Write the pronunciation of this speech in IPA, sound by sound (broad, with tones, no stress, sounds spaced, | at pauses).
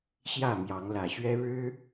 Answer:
ɕ j ä˥˨ m j ɑ˨˦ ŋ l ä˨˩ ɕ ɥ ɛ˦ ɻ ɻ̩˦